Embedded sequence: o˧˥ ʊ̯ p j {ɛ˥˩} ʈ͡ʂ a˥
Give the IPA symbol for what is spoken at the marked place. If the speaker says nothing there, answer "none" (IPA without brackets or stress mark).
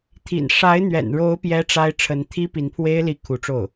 ɛ˥